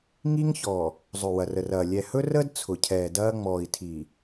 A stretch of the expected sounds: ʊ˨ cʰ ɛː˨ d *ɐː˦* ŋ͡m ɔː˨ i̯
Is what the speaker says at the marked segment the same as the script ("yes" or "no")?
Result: yes